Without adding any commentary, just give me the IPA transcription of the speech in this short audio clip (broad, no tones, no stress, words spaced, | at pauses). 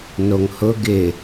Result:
noŋhʊ ɡɪ